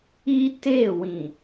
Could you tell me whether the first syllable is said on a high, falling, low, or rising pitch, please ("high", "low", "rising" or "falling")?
high